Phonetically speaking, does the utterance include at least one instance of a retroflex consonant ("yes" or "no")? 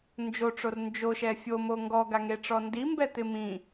yes